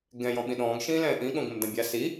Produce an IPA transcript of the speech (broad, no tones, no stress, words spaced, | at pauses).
ɡɛ̃ jɔ̃ɓĩɗɔ̃ːɡ ʃĩːlɛ̃ːʔĩ ɠõɡõmdãbʲa si